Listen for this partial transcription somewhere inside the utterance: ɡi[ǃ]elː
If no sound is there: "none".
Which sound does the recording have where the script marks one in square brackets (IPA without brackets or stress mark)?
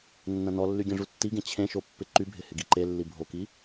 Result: ǃ